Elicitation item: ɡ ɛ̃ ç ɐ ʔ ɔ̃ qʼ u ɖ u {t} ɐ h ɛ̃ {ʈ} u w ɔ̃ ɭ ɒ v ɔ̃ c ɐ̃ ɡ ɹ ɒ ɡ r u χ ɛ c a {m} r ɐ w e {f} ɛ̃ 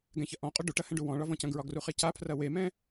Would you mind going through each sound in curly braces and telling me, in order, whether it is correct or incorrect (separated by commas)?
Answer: incorrect, incorrect, incorrect, incorrect